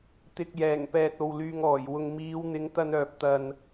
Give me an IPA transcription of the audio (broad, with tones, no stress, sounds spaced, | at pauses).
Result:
t̪ ɪ˨ k̚ j ɛː˨˩ ŋ p ɛː˨ t̚ o˨ w l yː˨ ŋ ɔː˨˩ j w ʊ˨ ŋ m iː˨˧ w n̪ ɪ˨˧ ŋ t̪ ɐ˧ n œː˨ p̚ t̪ ɐ˨ n